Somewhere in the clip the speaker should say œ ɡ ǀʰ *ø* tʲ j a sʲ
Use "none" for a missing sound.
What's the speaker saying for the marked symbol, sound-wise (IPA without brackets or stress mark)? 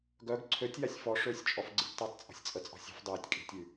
ø